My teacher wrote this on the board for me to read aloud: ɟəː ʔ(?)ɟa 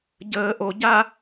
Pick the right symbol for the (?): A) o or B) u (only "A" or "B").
A